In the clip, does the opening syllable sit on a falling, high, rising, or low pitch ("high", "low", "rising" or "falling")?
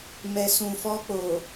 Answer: low